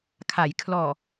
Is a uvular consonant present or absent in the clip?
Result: absent